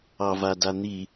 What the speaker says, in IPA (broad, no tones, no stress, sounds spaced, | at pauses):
ɑ v a d a n̪ i